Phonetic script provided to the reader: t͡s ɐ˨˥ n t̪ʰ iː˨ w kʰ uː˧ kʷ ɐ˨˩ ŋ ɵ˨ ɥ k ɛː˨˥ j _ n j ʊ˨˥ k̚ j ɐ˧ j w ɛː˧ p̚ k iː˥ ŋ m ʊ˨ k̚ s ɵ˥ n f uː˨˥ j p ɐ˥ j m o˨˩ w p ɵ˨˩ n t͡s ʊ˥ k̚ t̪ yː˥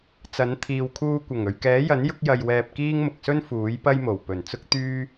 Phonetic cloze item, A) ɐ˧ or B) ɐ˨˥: B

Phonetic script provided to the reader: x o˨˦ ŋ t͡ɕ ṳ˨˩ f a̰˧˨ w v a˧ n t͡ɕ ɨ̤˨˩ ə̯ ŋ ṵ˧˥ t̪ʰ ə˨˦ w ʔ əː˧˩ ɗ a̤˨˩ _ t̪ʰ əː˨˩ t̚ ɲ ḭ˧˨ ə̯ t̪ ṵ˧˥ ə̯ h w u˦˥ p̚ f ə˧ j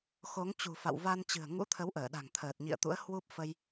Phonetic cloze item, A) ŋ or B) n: A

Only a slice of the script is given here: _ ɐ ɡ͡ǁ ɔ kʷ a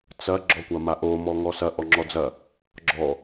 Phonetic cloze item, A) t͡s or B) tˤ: A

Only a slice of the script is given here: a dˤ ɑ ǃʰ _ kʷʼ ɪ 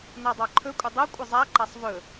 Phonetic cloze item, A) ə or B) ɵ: B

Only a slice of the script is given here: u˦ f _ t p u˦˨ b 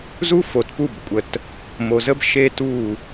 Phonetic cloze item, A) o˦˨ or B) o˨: B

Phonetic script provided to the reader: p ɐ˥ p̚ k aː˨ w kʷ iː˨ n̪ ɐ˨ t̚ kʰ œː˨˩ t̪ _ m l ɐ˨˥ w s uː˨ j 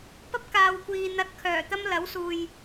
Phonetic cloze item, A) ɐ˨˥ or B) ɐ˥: B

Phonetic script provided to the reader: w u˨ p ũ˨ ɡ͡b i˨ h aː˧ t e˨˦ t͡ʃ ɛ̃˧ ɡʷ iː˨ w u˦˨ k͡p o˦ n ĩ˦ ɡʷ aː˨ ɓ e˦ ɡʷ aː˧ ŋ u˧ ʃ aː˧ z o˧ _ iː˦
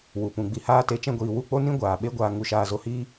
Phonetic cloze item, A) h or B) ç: A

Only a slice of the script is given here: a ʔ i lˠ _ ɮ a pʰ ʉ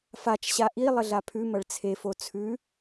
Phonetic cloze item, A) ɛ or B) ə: B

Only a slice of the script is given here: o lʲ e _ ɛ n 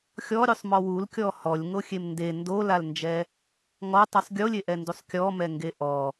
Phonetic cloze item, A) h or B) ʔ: B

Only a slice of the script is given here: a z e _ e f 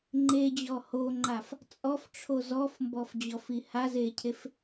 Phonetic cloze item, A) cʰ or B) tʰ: A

